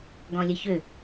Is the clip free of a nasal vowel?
no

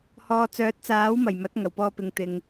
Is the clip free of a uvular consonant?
yes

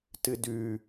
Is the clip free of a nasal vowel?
yes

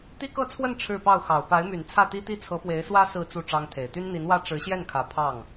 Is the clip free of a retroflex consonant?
no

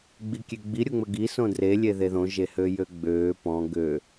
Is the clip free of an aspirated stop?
yes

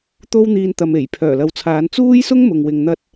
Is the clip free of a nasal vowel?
yes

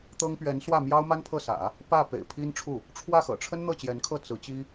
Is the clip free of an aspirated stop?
no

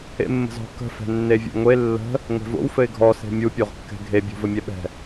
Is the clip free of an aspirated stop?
yes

